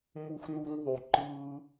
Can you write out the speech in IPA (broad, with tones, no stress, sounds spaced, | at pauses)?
m u˦ x n u˦ n ðˤ y˨ ǃ ɯ˧